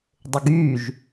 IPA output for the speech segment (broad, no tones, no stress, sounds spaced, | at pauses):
dˤ ʊ ɡ y ʒ